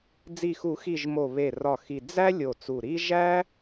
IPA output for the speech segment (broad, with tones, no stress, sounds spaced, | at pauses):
d͡z i˨˩ x u˨˩˦ x i˨˩ ʒ m o˨˩ β e˨˩ r ɒ˨˩ x i˨˩ d͡z æ˥ lʲ o˨˩ t͡s u˨˩ ɾ i˥ ʒ æ˥